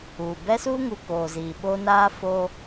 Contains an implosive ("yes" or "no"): yes